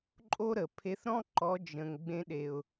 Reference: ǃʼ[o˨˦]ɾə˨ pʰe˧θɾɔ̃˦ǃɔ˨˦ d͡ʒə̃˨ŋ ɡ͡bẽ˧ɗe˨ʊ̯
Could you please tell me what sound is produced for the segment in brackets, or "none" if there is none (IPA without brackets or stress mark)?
o˦